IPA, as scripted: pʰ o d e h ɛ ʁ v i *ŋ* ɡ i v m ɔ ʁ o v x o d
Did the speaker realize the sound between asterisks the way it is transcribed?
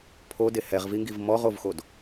yes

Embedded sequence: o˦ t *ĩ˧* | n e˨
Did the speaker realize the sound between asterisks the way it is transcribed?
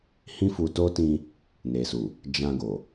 yes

